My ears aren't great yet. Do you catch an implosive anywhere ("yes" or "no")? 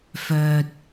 no